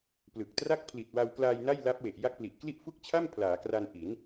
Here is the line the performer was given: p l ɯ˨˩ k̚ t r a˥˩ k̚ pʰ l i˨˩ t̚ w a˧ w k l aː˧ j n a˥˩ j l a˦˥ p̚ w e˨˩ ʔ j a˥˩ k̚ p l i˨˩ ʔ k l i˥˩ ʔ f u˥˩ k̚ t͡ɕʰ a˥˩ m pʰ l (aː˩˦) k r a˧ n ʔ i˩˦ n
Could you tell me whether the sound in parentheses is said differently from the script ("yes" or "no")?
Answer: no